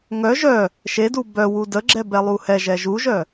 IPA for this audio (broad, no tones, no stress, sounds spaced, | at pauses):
ŋ œ ʒ œ | ʃ e d u b œ w u d ə ɡ͡ǁ ɛ b ɛ lˠ u h ɛ ʒ ɛ ʒ u ʒ œ